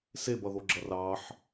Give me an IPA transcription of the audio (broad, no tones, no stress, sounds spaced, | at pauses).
s e b ʌ ð o ɡ͡ǁ ʌ r ɑ ħ